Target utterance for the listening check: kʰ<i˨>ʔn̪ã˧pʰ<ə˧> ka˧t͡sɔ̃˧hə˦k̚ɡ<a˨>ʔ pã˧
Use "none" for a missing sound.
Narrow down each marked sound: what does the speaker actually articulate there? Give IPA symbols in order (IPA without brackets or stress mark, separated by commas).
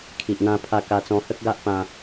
i˨, a˧, a˦